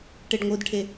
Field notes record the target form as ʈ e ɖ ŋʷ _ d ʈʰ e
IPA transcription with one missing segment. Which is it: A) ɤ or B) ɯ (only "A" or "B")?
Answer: B